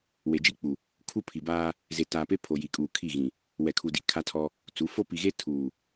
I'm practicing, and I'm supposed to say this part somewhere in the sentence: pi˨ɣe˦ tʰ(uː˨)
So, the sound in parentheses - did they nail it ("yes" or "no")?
yes